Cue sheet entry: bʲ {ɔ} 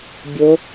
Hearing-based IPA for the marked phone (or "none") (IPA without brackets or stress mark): o